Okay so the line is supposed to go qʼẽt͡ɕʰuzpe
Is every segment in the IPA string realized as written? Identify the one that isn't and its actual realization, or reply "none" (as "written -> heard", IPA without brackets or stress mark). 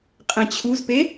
none